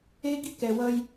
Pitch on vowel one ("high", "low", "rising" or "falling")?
high